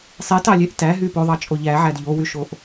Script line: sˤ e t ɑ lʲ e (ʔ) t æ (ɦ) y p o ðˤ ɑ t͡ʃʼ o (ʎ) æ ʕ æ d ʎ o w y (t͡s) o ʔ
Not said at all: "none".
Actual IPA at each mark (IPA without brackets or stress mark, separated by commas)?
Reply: ʔ, ɦ, ʎ, ʃ